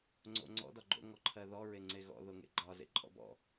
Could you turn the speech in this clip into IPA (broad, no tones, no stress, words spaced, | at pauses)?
ŋ͡ǀo̰ŋ͡ǀɔ̰ dɒɡ͡ǃo̰ ŋɔǃʰɜðɔ ɹeŋ͡ǀeɣɔ̰ ðoŋḛɡ͡ǃɒ zḛǃʼɔ̰bɔ̰